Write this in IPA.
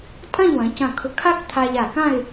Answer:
tʼ ɐ̃˥˧ ʎ w ɐ̃˩˧ c ɐ̃˧˩ kʰ ʊ˧˩ kʰ a˥ k t̪ʰ a˧ ʎ a˧˩ k ã˥˧ ɪ̯

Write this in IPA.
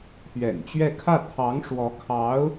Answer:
t̪ʰ ɥ ɛ̰˨˩ n t͡ɕ ɥ ɛ˥˧ kʰ ä˥˩ t̪ʰ ɑ˧˥ ŋ ʂ w ɔ˧˥ kʰ ɑ˧˥ ʊ̯

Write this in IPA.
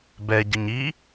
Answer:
b ɛ ɟ ə ɲ i

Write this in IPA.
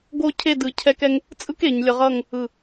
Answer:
ɡ o˥˧ cʰ e˥˧ d ɯ˧ cʰ ɛ˥ k ɛ˥ ŋ | t͡sʼ ɯ˥ k e˩˧ ɲ lʲ ʌ˧ ʁ ʌ˥˧ ŋ | ɯ˧˩

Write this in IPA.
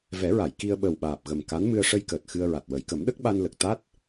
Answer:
v ɛ˨˩˦ ɹ a˨˩˨ j k i˧ ə̯ ɓ ə˨˩ w ɓ aː˨˩ p̚ ɣ ə˨˩ m k a˧˥ n m ɨ˧ ə̯ ʂ ə˧ j k əː˨˩ t̚ x ɨ˧ ə̯ ɹ a˨˩ t̚ w ə˨˩˨ j k ə˨˩˦ m ɗ ə˦˥ k̚ ɓ a˧ n l ə˨˩ k̚ t̪ a˦˥ t̚

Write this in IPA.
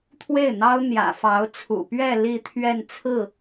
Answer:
t̪ʰ w e˥˩ ɪ̯ n̪ ɑ˥ ʊ̯ n̪ j ä̰˨˩ f ɑ˧˥ ʊ̯ t͡sʰ ṵ˨˩ p ɥ ɛ˥˧ l i˥˧ t̪ʰ ɥ ɛ˥˧ n t͡sʰ ɹ̩˥˩

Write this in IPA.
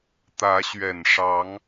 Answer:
t̪ ä˨˦ ɕ ɥ ɛ˨˩ n ʂ ɑ˨˦ ŋ

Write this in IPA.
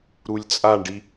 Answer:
ɾ u lʲ t͡sʼ a ɳ ɖ i

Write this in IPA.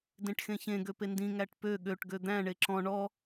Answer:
d ẽ ʈ x ẽ ç ẽ ɡ ø p e n d ĩ ŋ æ ʈ p ø ɠ ø ʈ ɡ ø d̪ æ̃ ɳ e ǁ ɔ̃ ɳ ɔ

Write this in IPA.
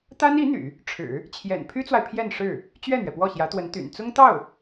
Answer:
t̪ a˥ n i˧˥ n̪ y̰˨˩˦ | ʈ͡ʂʰ ɻ̩˨˩˦ | t͡ɕʰ j ɛ̰˨˩ n pʰ y˥ t͡s w a˨ ɪ̯ pʰ j ɛ˥˧ n ʂ ɻ̩˥˩ | t͡ɕ ɥ ɛ˥˩ n̪ ɥ ɛ˩ p w ɔ˥˩ ɕ j ä˧˥ t̪ w ə˧˥ n t̪ y̰˨˩ n t͡s ʊ˥ ŋ t̪ ɑ˥˩ ʊ̯

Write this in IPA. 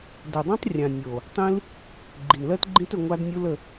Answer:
d ɵ˨ dˤ õ˦ tˤ rʲ ã˨ nʲ o˨ | tˤ ĩ˦ l | ɡ͡ǃ i˨ n l ɜ˦ t ɡ͡ǃ ĩ˦ t ɵ˧ ŋʷ a˦ d nʲ u˦ l ə˧

